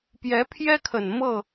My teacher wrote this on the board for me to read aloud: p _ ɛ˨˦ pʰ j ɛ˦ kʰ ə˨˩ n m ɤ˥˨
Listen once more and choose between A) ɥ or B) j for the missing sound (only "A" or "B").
B